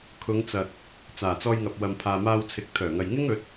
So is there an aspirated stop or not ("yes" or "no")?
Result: yes